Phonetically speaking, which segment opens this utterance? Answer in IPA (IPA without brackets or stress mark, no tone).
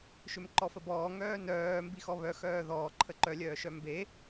ʃ